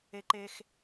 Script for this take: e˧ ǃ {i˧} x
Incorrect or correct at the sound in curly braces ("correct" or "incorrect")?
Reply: incorrect